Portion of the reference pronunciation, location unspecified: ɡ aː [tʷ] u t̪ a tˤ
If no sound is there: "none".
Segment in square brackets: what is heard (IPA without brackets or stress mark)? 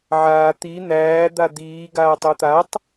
tˤ